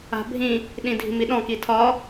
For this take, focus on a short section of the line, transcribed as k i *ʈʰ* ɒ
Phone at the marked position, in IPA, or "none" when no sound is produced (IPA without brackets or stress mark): tʰ